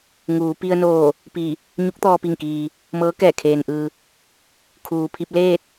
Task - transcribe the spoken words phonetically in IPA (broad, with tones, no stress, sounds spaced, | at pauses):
ŋ uː˩˧ p i˧ ə̯ n oː˧˩ | p i˧˩ | ɲ u˧˥ k̚ t̪ ɔː˧ p i˧˩ ŋ k iː˩ | m ɤː˧˥ k ɛː˧˩ kʰ eː˩ n ʔ ɯː˩ | kʰ uː˩ pʰ i˧ p̚ l eː˥˨ t̚